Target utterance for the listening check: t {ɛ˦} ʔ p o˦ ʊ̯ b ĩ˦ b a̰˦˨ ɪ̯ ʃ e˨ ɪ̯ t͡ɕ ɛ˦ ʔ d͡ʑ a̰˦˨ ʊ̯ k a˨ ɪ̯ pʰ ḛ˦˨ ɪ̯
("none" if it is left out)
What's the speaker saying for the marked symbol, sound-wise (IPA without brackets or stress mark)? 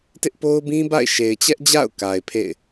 ɪ˦